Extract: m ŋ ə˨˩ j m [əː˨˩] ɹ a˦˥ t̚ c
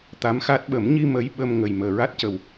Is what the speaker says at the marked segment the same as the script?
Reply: yes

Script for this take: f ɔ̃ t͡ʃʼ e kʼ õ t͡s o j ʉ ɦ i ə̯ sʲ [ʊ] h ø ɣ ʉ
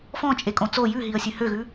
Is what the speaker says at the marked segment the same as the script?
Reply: no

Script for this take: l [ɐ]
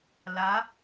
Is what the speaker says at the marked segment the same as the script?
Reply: no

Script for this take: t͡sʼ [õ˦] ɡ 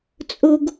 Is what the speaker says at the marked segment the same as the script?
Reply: no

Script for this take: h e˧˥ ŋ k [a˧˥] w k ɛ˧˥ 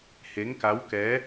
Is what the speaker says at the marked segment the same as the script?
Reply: yes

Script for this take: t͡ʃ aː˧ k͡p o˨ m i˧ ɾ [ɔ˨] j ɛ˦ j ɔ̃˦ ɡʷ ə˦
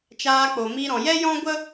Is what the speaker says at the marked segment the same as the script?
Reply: no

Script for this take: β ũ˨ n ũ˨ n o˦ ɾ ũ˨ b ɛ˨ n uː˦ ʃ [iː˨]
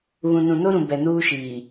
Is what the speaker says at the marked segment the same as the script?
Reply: yes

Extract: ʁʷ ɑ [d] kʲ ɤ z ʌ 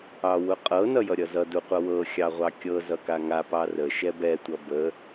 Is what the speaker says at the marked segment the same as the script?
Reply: no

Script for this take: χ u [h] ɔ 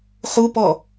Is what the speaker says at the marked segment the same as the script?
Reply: no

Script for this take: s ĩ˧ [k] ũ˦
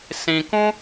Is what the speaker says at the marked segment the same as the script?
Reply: yes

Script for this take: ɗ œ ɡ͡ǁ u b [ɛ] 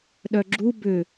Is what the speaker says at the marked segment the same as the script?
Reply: no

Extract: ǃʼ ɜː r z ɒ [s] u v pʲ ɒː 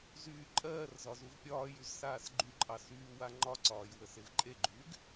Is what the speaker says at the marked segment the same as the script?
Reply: no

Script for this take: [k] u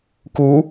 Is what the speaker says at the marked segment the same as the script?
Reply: yes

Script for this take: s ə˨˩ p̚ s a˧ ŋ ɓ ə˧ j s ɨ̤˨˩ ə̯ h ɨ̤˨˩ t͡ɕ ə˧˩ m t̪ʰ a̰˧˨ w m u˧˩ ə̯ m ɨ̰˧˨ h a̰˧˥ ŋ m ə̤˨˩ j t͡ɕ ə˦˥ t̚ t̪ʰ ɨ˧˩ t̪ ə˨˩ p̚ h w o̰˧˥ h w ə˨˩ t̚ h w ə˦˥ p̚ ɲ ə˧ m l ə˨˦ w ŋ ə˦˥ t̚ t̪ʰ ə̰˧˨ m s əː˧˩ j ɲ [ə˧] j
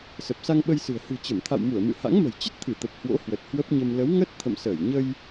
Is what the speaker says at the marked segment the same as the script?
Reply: yes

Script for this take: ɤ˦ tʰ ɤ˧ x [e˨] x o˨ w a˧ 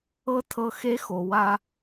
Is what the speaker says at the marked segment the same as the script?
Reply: no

